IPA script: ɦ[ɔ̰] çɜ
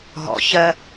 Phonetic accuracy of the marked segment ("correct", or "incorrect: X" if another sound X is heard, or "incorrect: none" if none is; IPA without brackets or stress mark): correct